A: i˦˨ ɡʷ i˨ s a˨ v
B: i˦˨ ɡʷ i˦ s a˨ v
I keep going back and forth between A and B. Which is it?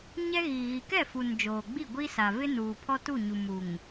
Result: B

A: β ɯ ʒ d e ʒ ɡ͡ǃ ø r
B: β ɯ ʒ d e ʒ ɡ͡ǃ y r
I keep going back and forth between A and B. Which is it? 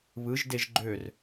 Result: A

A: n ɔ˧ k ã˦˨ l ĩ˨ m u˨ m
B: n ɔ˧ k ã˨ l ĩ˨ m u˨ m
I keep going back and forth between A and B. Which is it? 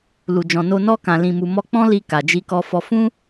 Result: B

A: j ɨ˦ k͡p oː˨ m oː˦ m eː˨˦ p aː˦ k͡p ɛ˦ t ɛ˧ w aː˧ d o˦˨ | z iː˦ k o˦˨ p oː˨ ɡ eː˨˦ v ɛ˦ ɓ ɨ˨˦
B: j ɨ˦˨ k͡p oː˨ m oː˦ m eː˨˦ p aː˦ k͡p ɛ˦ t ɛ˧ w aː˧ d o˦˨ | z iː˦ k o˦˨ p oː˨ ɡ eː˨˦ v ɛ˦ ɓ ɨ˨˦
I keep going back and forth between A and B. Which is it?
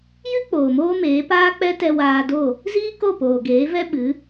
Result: A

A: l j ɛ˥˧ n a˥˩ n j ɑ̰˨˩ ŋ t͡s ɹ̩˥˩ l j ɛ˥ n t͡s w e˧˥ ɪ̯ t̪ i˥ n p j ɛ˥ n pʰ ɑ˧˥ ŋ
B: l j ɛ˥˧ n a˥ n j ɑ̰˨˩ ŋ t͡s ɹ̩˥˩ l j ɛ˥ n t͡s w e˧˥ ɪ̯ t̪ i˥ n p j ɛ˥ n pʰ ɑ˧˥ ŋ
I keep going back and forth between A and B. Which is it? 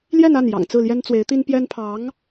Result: A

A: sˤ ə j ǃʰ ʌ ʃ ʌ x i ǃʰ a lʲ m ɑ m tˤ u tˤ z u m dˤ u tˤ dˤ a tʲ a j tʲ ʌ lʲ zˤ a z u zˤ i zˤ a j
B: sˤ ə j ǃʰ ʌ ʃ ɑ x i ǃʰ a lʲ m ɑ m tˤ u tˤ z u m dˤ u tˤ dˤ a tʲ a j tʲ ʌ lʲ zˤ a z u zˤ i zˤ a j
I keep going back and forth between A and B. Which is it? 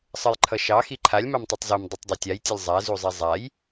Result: B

